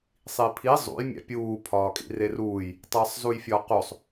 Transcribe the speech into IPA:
sˤ i pʰ i zˤ ṵ j mʲ æ̰ pʲ uː pʰ ɒː kʼ ḭ r e r uː j | tˤ æ sˤ z u j fʲ ɒ q o sˤ

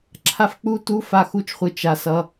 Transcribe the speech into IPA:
ǁʰ a˦ f k͡p u˦ t u˦ f a˦ x u˦ t͡ʃ χʷ ɯ˧ t͡ʃ a˧ s ʌ˧

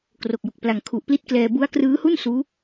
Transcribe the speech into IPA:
k r o˨˩ k̚ j o˨˩ k̚ p l a˨˩ ŋ kʰ u˨˩ ʔ p l i˦˥ t̚ k l ɛː˧ b u˦˥ a̯ k r ɯː˦˥ h u˥˩ n s uː˦˥

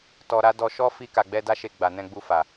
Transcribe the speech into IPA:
t ɔ˧ ɾ a˦ d ɔ˧ ʃ ɔ˦ f i˧ k a˨ ɡ͡b ɛ˧ d a˦ ʃ e˧ ɡ͡b a˨ n ɛ̃˧ ɡ͡b u˧ f a˨

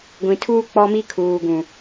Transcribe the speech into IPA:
ɡʷ ĩ˨ tʰ uː˦ k͡p ɔ˦ m i˦ kʰ uː˨ ɡ ũ˨

